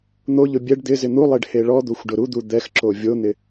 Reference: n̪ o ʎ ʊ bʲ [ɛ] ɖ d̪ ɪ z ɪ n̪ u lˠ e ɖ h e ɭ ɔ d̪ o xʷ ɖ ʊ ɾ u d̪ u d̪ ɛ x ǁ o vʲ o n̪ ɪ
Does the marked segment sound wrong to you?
no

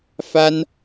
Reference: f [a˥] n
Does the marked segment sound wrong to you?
no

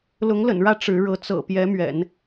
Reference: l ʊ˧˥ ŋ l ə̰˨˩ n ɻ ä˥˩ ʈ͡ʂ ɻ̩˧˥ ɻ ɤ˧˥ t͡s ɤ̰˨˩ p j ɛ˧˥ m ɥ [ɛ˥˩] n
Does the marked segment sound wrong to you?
yes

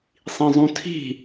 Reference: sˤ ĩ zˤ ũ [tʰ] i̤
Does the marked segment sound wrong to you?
no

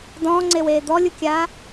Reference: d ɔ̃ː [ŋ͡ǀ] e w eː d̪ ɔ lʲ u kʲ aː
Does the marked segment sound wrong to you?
no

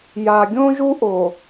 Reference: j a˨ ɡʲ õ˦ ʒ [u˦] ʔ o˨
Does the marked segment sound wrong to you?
no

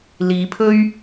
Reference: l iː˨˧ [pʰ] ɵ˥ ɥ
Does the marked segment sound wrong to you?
no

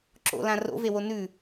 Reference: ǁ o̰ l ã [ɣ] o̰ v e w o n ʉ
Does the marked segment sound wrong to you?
yes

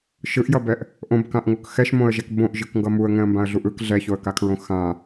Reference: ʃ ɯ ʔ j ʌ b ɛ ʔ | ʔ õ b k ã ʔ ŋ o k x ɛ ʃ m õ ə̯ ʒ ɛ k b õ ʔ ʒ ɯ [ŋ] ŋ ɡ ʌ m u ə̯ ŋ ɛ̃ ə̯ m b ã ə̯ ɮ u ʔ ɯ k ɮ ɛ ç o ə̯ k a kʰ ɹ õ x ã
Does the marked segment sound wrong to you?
yes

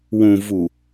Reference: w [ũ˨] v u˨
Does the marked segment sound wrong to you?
no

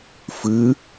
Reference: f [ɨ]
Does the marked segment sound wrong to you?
no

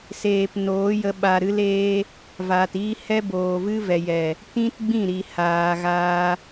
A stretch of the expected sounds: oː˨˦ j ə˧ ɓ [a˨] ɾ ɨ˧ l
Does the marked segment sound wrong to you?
no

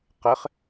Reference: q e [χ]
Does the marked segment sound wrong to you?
no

